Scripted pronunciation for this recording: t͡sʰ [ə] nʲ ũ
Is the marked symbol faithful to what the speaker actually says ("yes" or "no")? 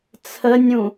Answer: yes